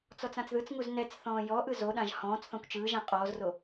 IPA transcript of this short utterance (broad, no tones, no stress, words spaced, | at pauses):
t͡sɔt͡sãt͡sðɯt͡sŋuz nɛt͡s θɔ̃ːjɔʔɯ zoɗãʒ hɔ̃ːt͡sθɔ̃kʷ t͡ʃɯːʒã qʼɔːzro